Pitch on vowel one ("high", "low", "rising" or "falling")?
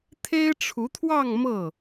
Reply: high